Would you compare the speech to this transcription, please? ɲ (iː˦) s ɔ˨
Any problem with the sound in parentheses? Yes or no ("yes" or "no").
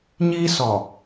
no